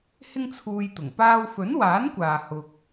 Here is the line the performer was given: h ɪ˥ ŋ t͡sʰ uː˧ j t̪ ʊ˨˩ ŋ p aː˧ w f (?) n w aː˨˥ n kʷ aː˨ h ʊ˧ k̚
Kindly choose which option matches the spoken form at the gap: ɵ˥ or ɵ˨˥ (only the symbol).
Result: ɵ˨˥